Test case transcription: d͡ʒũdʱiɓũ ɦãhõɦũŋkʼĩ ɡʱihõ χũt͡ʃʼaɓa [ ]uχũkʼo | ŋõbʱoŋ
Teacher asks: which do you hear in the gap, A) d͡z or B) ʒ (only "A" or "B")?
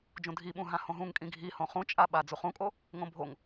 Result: A